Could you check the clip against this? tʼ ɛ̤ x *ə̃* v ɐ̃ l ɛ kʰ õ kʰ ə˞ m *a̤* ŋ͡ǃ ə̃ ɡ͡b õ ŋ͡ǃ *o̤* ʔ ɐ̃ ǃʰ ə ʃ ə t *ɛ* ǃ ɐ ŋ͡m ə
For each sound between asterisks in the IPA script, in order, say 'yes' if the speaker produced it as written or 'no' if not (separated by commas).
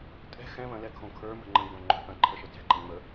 no, no, yes, no